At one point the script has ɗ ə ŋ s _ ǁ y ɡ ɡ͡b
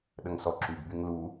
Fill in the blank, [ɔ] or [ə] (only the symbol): ɔ